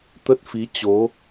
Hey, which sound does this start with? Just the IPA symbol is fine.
t̪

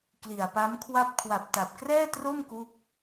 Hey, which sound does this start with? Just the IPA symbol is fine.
k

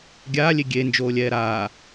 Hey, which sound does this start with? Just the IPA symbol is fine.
ɡʲ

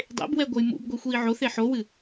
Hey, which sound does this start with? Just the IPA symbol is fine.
dˤ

